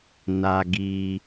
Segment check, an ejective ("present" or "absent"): absent